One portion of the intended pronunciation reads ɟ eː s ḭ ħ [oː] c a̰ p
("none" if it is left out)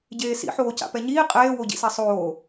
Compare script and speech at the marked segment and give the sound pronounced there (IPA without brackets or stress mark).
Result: oː